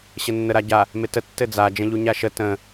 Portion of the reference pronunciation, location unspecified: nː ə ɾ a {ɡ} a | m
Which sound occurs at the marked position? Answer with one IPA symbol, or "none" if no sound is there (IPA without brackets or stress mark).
ɟ